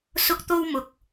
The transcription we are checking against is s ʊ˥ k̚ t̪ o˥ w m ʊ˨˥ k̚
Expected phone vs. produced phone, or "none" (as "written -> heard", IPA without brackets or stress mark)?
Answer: none